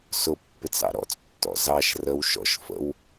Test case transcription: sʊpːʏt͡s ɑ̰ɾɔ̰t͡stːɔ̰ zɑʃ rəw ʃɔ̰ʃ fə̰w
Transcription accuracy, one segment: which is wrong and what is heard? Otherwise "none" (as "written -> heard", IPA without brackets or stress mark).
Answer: ʏ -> ɪ